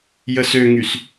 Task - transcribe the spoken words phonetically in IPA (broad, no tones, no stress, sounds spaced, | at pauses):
j ə s ø ŋ y s